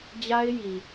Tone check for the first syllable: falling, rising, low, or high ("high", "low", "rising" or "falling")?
high